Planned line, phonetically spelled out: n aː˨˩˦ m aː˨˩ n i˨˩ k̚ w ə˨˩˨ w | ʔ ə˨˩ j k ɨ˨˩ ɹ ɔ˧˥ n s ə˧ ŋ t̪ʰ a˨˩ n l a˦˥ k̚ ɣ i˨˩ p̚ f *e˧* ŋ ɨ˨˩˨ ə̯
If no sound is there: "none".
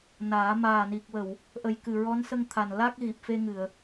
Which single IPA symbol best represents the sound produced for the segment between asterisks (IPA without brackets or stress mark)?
e˧